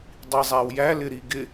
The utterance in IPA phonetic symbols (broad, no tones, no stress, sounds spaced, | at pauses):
dˤ i zˤ æ w j æ l ɪ ɾ i ɡ ɪ